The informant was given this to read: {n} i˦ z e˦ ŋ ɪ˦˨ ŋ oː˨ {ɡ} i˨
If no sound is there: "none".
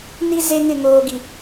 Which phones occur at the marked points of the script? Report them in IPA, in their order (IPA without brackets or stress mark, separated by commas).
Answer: n, ɡ